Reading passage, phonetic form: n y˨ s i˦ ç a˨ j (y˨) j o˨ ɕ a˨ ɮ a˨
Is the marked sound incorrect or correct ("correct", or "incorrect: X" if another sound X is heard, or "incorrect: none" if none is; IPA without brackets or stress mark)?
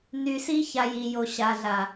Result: incorrect: i˨